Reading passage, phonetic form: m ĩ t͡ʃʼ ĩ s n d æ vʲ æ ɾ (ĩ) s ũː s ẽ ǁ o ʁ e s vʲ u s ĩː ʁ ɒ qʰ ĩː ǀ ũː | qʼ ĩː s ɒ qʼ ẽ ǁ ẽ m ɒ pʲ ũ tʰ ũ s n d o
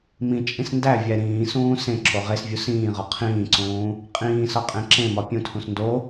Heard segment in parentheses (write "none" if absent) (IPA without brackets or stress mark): ĩː